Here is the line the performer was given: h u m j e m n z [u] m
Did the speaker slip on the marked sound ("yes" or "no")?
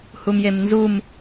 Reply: no